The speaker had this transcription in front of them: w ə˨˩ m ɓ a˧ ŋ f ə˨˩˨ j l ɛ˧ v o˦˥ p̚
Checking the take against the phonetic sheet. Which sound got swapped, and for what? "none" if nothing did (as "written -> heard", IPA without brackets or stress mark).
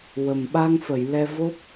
none